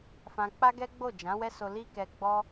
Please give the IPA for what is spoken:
f ã˧ k͡p a˦ ɡ ɛ˦ ɡ͡b o˦˨ d͡ʒ ã˨˦ w ɛ˦ s o˧ l i˦ k ɛ˧ ɡ͡b ɔ˧

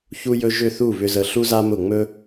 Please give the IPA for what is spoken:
ç u˥ j ɵ˥ ʒ ʏ˥˩ θ u˥˩ β ʏ˥ z ə˥˩ ɬ u˥ z a˥ m ʊ˥˩ ŋ͡m ɵ˥

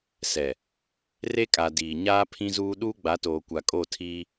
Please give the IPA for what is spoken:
s ɛ˨ | r e˦ kʼ a˨ d iː˨ ɲ aː˦ pʰ ĩ˦ z uː˦ ɗ uː˦ ɡ͡b a˨˦ t oː˨ kʷ a˨ kʼ o˦˨ tʰ iː˦

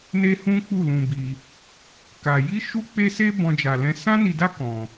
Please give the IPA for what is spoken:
n e˦ h ũ˦ k͡p u˦˨ l ũ˧ b i˧ | k a˧ j i˦ ʃ u˦ k͡p e˦ s e˦ b ɔ̃˦ d͡ʒ a˧ l ɛ̃˦ s ã˦ n i˧ d a˦ k ɔ̃˧

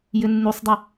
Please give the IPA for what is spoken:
j ɘ nː u sˤ dˤ ɐ

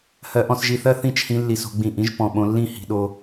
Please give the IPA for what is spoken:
h ɜ˧ ʔ ɔ̃˧ s ʒ i˧ θ ɜ˦ θ ĩ˦ t͡ʃ h ĩ˧ lː i˨ s o̤˧ ɡ͡b ĩ˨ ʔ ĩ˧ ʒ p ɔ̃˨ ɓ õ˧ lː ĩ˦˨ h i̤˧ ɗ o˧

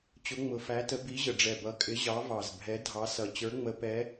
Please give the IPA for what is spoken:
t͡ɕ ʊ˨˦ ŋ͡m ʊ˨˩ f æ˨˦ t ə˨˦ b i˨˦ ʑ ə˨˩ ɖ͡ʐ ɛ˨˩ b ʌ˨˦ kʼ ɪ˨˦ ʑ ɑ˨˦ v ɑ˨˩ z bʱ ɛ˨˦ dʱ ɑ˨˦ s ʌ˨˩ t͡ɕ ə˞˨˦ ŋ͡m ə˨˦ p ɛ˨˦

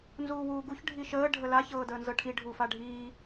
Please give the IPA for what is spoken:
n z uː w uː ɡ u ç ɖʱ i ʃ əː ɖʱ ə l a ç ɤː d əː n z ɤ ʈʰ i ɖʱ uː f a ɖʱ iː

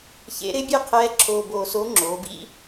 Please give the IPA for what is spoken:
ç ḛ˧˥ ɾ ɪ˧˥ bʲ e˥ qʰ ɛː˧˥ ǁʰ oː˧ b oː˧ s o˧˥ ŋ͡ǁ oː˩˧ b ḭ˥

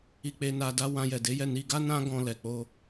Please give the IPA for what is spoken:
i˧ k͡p e˧ n a˧ d a˦ w ã˧ j ɛ˨ d e˨˦ j ɛ˦˨ n i˧ ɡ a˦ n ã˦ ɡ ɔ̃˧ l ɛ˨ k͡p o˧

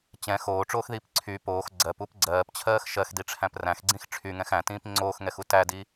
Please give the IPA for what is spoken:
t͡ɕ ɛ̃ x oː ʈ͡ʂ oː x ð iː p ǀʰ y p oː x ɡ͡ǀ ɜ p u p ɡ͡ǀ ɜː p t͡ɕʰ ɜː x ʃ ɜ x d i ʈ͡ʂʰ æ̃ p r æ̃ x ɡ͡ǀ ĩ x ʈ͡ʂʰ y ŋ ɛ̃ x æ̃ t ĩː p ŋ͡ǀ oː x ŋ ɛ x u t æ d i

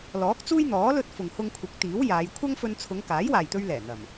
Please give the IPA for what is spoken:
l ɔː˨˥ k̚ t͡s uː˥ j n̪ ɔː˨˥ l ɵ˥ t̚ f ʊ˨ ŋ h ʊ˧ ŋ kʷʰ ɪ˨˥ k̚ t̪ iː˨˥ w j aː˨˧ j kʷʰ ɐ˥ ŋ f ɵ˧ n t͡sʰ ʊ˨˧ ŋ k aː˨˥ j w aː˨ j t̪ ɵ˧ ɥ l ɛː˨˩ n̪ ɐ˨˩ m

